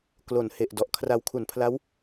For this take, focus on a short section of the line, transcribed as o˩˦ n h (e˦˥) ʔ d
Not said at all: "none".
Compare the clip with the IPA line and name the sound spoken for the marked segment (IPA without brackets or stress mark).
e˨˩